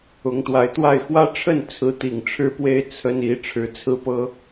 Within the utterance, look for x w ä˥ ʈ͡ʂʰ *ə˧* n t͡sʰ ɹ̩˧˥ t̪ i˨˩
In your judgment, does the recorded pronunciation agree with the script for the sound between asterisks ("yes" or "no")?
no